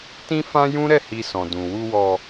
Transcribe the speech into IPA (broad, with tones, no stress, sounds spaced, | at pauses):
t ĩ˦ f ã˦ j ũ˦ ɾ ɛ˦˨ h i˧ s ɔ̃˨ d ũ˨ w u˧ w ɔ˧